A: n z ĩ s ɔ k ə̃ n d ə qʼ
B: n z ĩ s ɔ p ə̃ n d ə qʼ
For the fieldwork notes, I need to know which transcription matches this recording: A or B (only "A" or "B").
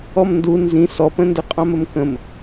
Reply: B